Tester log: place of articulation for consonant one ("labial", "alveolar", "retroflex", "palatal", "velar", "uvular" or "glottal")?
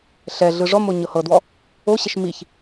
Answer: alveolar